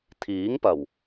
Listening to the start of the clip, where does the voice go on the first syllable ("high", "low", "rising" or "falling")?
rising